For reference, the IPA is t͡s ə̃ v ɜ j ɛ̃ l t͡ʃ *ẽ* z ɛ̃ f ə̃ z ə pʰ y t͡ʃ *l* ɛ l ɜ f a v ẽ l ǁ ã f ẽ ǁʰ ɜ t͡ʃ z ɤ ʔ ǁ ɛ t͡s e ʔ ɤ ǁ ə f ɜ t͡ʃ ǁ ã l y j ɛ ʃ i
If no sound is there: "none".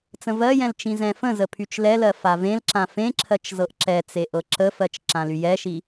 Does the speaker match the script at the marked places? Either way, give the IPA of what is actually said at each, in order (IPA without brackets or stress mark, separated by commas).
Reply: ĩ, l